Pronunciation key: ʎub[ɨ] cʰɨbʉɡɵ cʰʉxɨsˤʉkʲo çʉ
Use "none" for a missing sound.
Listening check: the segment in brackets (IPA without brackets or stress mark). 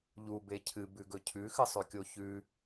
e